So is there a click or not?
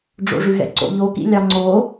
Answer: yes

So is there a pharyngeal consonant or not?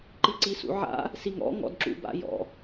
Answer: yes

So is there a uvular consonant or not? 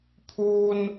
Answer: no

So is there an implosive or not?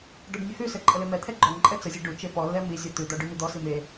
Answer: no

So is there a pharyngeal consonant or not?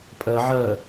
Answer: yes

